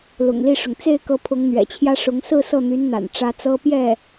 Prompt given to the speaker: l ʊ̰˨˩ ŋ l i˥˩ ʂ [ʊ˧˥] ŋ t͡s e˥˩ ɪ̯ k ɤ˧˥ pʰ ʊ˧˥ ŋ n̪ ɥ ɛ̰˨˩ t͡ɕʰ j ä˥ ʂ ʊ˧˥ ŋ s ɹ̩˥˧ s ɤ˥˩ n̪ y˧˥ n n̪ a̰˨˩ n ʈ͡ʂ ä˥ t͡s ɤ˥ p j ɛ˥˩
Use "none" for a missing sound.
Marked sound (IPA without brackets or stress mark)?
ʊ˩